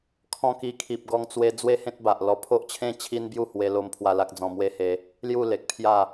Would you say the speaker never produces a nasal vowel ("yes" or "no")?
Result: no